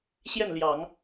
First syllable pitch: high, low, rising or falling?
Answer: falling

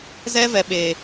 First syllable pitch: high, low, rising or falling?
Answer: high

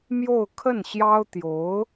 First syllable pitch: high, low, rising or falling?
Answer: falling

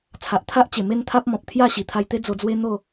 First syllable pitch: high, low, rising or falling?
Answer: low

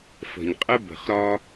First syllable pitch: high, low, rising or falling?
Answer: low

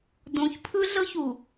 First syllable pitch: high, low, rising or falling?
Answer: low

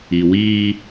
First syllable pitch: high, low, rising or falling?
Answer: low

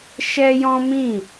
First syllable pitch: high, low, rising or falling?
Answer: high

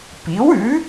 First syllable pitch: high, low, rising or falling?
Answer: rising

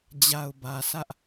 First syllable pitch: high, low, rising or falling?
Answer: low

